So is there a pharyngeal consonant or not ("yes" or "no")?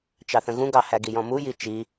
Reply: no